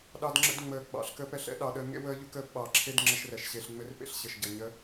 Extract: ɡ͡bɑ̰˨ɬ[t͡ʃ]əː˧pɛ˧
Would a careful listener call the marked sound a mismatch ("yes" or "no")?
yes